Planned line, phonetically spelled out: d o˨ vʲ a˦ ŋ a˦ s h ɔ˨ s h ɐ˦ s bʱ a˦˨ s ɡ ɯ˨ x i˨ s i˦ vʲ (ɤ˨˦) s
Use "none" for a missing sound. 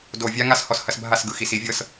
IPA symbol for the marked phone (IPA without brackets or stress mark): ɤ˦